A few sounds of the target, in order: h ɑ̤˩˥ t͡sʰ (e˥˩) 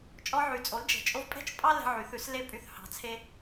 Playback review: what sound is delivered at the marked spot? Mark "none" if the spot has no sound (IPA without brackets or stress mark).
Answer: e˧